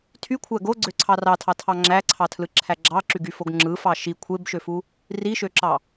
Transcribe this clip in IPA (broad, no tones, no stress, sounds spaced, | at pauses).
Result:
tʰ y kʷʰ æ ɡ o ɡ͡ǀ ø ǀʰ ɑ r ɑ tʰ ɑ tʰ ɑ ŋ͡ǁ æ ǀʰ ɑ tʰ l ɯ ǁʰ æ ɡ͡ǁ ɑ ǁ y ɡ y f o ɡ ŋ͡ǁ ɯ f ɑ ʃ i kʷʰ e b ʃ ø f u | r i ʃ ø ǁ ɑ